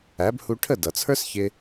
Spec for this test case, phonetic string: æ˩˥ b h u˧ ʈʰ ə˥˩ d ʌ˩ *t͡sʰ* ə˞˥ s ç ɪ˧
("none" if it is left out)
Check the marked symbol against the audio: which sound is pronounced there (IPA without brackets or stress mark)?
t͡sʰ